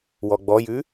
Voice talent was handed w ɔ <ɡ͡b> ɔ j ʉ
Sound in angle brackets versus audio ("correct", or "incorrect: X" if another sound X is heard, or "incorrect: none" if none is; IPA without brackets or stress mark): correct